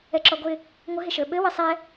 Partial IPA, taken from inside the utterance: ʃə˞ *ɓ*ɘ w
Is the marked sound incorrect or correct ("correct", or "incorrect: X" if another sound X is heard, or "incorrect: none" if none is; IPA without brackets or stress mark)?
correct